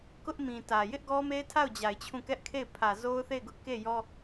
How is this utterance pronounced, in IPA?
k ʊ˦ ʔ m ĩ˨ t ä˨ j ɪ˦ ʔ ɡ ɔ˦ m e˦ ɪ̯ tʰ a˦˨ ʊ̯ d͡ʑ a˨ ɪ̯ t͡ɕʰ ũ˦˨ k ɛ˦ ʔ kʰ e˦˨ ɪ̯ pʰ ä˨ z o˦ ʊ̯ θ e˦˨ ɪ̯ ɡ ʊ˦ ʔ k e˦˨ j ɔ˦

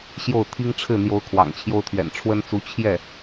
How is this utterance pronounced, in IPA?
ɕ j o˥˩ ʊ̯ t̪ʰ i˥ ŋ ʈ͡ʂʰ ɻ̩˥˩ n̪ j o˧˥ ʊ̯ kʰ w ɑ̰˨˩ ŋ t͡ɕʰ j o˥ ʊ̯ t̪ʰ ɥ ɛ̰˨˩ n ʈ͡ʂʰ w ə˥ n t͡s u˧˥ t͡ɕʰ j ɛ˥˩

